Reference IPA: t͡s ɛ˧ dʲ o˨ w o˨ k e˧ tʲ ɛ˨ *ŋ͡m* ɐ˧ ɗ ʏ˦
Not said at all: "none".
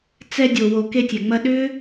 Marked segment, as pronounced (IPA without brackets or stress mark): ŋ͡m